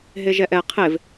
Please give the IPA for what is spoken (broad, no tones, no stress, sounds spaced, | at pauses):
ɦ e ʒ ɛ ʔ ɛ qʰ e v